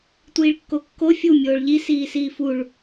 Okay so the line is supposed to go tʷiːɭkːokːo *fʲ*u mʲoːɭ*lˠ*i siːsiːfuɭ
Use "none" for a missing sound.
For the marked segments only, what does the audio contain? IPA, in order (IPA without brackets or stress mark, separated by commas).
fʲ, ʎ